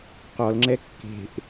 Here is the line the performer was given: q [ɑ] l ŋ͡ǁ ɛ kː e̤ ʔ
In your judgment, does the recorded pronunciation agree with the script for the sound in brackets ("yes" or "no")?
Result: no